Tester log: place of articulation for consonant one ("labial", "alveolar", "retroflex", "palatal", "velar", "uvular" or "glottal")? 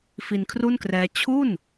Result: labial